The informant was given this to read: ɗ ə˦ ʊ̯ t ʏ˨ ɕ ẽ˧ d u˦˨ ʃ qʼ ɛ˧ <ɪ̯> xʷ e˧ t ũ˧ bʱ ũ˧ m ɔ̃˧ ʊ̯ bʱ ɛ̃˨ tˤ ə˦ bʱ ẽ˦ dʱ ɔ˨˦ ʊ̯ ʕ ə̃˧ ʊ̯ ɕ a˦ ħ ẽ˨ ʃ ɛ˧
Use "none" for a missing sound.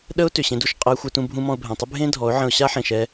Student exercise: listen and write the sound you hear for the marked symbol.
ɪ̯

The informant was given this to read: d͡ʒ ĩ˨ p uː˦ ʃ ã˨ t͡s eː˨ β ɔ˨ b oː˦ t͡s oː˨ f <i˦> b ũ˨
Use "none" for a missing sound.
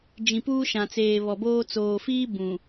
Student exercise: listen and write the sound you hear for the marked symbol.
iː˦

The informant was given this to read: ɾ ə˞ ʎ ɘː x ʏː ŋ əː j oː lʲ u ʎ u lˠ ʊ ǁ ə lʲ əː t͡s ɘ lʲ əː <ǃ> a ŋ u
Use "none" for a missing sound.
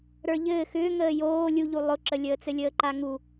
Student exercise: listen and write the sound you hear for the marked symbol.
ǃ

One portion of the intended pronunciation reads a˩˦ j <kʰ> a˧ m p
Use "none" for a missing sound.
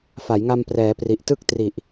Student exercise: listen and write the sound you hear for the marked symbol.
ŋ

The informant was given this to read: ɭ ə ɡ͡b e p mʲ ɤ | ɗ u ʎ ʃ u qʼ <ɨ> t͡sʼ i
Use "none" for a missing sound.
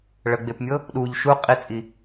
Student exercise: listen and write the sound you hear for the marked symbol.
i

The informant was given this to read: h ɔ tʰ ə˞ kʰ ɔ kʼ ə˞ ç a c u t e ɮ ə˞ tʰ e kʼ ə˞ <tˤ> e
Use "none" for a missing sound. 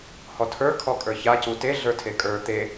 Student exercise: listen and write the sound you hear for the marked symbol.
t̪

